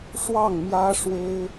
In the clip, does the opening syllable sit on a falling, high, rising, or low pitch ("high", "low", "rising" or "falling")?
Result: falling